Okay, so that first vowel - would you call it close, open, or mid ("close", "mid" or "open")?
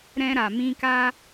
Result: mid